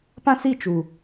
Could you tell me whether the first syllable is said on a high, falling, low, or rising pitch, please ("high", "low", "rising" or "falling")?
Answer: high